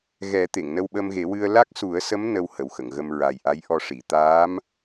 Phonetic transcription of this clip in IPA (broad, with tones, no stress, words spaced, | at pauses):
ɣɛ˨˩˦ t̪e˨˩˨ŋnə˧wɓə˧mɣe˨˩˦ wɨ˧ə̯ la˦˥k̚su˨˩˦ə̯sə˧˥m nə˧w hə˨˩wxə˨˩˨ŋɣə˧m ɹa˨˩jʔa˧˥j ʔɔ˧ʂi˨˩˨ t̪aː˧˥m